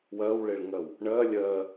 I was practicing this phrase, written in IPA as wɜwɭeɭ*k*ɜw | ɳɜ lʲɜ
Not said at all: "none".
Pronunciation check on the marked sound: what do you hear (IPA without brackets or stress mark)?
ŋ